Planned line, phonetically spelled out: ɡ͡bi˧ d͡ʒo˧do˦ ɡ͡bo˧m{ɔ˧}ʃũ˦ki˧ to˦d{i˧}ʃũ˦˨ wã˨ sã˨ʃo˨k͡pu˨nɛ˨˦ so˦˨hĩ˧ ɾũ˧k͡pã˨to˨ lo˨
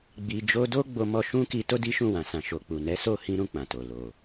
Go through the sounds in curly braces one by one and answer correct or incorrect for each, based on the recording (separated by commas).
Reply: correct, incorrect